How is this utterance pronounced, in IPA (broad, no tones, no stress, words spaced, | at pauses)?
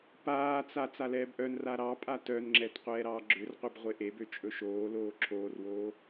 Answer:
paːt͡sa t͡salɛːbʔœnra ɾɑpʼa tœnŋ͡ǁɛt qʷɛːɾɑːɡ͡ǁørqʷeb ʁʷeʔebø t͡ʃʼɵʃoːloː ǁʰoːrwoː